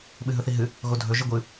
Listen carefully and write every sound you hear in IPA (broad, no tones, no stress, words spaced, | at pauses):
ɓɨɦɵθiɦɨ | ɣodʱɵ ʒɨɡʷɨ